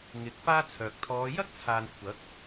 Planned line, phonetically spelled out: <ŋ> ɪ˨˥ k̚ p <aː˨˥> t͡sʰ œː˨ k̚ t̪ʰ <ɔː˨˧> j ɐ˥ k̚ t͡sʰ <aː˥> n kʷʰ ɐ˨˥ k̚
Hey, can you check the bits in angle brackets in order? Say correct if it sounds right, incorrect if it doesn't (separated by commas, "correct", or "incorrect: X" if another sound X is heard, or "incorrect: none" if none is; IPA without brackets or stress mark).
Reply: correct, incorrect: aː˥, correct, incorrect: aː˨